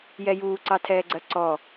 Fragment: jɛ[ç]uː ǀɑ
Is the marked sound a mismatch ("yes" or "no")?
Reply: yes